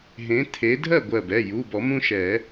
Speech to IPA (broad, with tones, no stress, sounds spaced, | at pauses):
ɦ ẽ˨˦ t̪ʰ e˨˦ dʱ ɜ˥˨ ɡʷ ɜ˧˩ b ɛ˩˧˩ j u˩˧˩ b ɔ˨˩˦ m ũ˦ ʃ ɛ˨˩˦